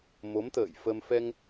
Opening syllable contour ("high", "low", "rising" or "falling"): rising